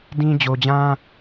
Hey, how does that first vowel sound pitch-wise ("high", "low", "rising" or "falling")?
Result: high